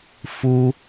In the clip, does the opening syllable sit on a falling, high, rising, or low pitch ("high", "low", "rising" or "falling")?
high